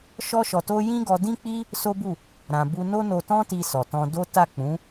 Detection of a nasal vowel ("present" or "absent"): present